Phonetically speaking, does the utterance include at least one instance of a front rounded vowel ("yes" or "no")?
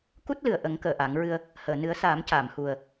no